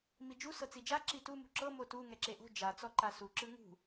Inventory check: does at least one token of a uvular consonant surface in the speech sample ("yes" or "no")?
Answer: no